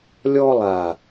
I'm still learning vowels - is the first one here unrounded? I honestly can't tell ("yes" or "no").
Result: no